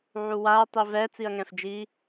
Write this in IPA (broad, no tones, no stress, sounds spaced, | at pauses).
ʕ u w a ɐ̯ tˤ i v ɛ t͡s i ɐ̯ ŋ ɛ̃ f d͡ʒ i